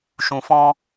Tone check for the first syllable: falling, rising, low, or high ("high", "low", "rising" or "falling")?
low